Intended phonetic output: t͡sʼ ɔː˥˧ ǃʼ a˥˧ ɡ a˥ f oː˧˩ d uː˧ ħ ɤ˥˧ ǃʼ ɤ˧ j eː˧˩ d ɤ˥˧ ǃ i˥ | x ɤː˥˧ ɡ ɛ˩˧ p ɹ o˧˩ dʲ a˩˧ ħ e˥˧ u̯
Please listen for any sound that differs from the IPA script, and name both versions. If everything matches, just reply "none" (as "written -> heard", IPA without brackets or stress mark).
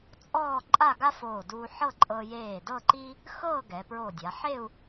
none